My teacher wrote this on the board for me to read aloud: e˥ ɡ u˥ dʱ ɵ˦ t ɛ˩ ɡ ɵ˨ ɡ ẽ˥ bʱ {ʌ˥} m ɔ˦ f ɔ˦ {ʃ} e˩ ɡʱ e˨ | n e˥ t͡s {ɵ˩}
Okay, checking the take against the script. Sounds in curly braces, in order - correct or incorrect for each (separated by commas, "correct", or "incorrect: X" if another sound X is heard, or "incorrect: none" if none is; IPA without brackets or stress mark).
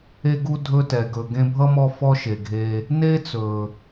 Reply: correct, correct, correct